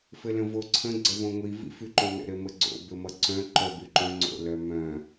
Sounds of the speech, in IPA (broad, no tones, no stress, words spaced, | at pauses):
fɘlə̃voǀʰə̃ ɡ͡ǀəvõŋʷi vḭfyǃõnə̰ ɾɘməɡ͡ǀo̰ bɘmʌǀœ̃ ǃœbyǃœ̃ ŋ͡ǀo̰lœmœ̃